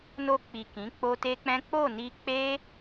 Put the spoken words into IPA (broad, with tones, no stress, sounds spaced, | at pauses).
n o˧ k͡p i˨ k ĩ˨˦ k͡p o˦ t e˦ k͡p ɛ̃˦ k͡p o˦˨ n i˧ k͡p e˦